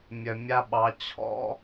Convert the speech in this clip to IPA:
mʲ œ˨ mʲ a˦ ɓ ɑ˨˦ t͡ɕʰ ɔ̰˦

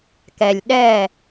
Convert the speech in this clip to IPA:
k ɛ˨ lʲ ɗ ɛ˦˨

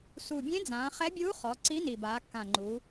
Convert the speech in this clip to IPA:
s u˨˩ bʲ ẽ˧˥ d͡z ãː˩˧ χ ɛ˧˥ bʲ uː˧˥ χ ɔ˩˧ ǀ i˧˥ n i˨˩ b aː˩˧ kː ã˨˩ ŋ͡ǃ u˩˧

